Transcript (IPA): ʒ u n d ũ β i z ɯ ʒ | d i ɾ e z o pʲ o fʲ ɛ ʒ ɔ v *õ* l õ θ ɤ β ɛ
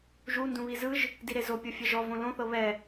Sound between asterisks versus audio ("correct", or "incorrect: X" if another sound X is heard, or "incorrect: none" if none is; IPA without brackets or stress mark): correct